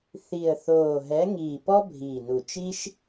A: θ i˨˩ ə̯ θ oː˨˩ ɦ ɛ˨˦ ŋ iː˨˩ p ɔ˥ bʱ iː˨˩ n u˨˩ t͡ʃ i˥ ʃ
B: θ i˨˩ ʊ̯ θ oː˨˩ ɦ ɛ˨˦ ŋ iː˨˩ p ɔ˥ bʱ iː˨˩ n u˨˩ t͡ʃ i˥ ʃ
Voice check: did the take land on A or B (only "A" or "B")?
A